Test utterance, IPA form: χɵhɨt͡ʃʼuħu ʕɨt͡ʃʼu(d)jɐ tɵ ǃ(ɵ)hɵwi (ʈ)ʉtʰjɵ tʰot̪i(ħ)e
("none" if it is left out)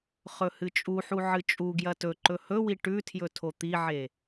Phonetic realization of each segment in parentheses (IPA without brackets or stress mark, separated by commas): ɡ, ɵ, ʈ, ʕ